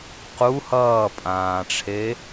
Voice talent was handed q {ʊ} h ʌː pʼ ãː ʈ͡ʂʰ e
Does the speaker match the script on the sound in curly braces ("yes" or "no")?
no